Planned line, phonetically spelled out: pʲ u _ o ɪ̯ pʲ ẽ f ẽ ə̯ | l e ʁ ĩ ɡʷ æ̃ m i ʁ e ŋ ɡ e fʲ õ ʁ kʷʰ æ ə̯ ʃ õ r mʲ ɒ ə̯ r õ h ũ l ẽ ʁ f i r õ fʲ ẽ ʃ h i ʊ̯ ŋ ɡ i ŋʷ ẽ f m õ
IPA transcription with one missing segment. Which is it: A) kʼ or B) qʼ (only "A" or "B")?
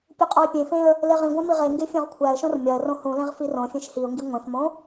B